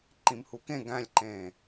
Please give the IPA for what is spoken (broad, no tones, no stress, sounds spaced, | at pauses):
ǃ ĩ m h u k ẽ ɡ æ̃ lʲ ǃ ẽː